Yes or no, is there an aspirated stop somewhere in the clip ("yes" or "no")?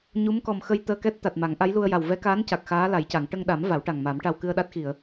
no